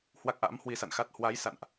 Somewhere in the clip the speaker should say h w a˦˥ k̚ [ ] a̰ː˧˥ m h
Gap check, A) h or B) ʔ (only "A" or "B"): B